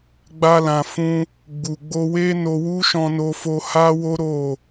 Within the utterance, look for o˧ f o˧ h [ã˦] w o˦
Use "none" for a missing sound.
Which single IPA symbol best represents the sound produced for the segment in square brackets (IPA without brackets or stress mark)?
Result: a˦